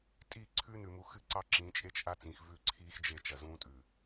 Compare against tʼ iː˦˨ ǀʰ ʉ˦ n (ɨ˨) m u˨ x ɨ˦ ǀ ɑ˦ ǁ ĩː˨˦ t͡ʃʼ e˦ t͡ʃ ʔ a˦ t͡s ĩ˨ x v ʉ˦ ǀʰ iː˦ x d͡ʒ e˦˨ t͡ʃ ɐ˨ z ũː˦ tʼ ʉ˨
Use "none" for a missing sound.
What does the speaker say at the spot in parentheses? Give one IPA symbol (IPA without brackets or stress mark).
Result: ʉ˨